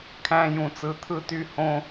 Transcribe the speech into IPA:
kʰ æ̃˧ j ũ˨ t͡s ɯ˨ t̪ʰ ɯ˧ t y˧ h õ˧

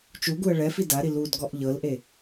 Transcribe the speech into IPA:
t͡ʃ u ɡ u ə̯ ɭ ɛ f i d a ɾ i l u d ɡ ɔ ʔ ʎ ɤ l ʔ e

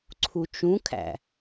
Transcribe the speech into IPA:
ǀʰ u t͡ʃ ũ kʰ æ̰

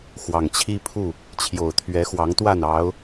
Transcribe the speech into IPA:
x w ɑ˨˩ ŋ t͡ɕʰ i˦ pʰ u˥˨ | t͡ɕʰ j o˨˩ ʊ̯ t̪ʰ ɥ ɛ˨˦ x w ɑ˨˦ ŋ t̪ w a˥˨ n ɑ˨˦ ʊ̯

